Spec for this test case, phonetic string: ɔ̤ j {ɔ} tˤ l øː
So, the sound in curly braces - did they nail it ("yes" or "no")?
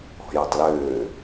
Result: yes